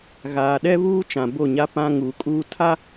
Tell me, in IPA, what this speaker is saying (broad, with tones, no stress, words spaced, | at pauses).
ɣaː˨ɗɛ˦βuː˦ t͡ʃã˨bo˦˨ɲa˦ pã˦ŋuː˨kʼuː˦tʰa˦